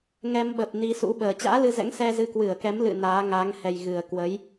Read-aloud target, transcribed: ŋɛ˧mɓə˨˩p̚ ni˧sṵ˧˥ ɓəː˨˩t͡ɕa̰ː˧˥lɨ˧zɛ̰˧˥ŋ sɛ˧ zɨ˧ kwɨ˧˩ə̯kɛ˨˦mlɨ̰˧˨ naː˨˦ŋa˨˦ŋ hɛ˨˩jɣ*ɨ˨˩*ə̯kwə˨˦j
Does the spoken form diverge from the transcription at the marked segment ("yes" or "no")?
no